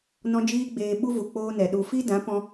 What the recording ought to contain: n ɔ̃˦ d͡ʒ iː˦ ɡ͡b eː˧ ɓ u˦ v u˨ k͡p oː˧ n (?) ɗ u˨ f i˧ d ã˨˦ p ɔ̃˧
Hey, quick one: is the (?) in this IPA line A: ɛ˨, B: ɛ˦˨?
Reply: A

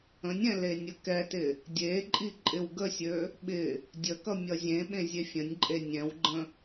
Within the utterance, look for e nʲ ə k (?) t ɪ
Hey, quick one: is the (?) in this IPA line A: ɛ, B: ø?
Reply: A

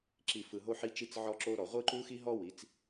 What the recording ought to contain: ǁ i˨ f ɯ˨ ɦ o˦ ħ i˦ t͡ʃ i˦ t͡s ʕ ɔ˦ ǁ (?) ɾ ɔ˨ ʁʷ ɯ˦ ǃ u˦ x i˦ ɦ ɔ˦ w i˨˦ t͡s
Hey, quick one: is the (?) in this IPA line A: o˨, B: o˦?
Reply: B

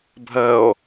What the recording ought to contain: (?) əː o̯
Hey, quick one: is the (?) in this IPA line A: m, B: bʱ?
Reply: B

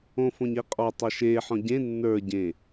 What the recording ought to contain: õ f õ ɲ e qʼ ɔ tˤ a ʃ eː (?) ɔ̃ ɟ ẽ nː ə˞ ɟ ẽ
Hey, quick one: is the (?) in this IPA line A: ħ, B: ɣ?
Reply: A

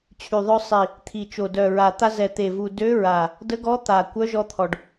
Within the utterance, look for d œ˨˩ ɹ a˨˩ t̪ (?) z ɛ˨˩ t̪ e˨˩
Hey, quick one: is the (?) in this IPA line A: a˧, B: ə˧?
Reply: A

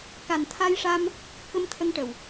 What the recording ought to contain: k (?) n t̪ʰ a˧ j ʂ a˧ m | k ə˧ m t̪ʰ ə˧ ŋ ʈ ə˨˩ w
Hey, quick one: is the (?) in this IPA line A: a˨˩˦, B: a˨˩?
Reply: B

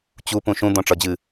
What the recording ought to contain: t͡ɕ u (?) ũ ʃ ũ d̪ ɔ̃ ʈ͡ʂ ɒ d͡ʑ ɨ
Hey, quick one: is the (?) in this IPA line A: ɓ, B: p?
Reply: B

